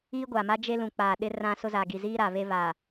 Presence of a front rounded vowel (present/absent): absent